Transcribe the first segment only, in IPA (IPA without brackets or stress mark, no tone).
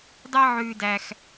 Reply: dˤ